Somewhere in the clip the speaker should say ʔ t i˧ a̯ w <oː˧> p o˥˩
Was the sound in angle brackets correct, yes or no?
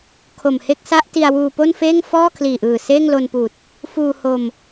no